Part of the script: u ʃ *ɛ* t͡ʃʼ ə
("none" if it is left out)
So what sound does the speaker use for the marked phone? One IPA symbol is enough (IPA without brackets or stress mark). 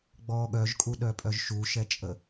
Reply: ɛ